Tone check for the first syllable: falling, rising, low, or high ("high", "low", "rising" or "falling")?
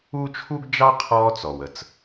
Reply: high